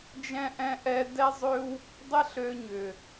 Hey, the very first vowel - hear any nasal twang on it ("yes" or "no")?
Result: yes